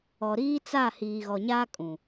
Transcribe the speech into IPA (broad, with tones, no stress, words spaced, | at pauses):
ɔ˨ɾiː˦t͡sa˦˨ hiː˨ɣɔ˨ɲaː˦ kʼũ˨